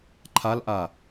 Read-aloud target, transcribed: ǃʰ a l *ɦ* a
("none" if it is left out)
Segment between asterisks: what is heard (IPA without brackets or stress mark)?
ʔ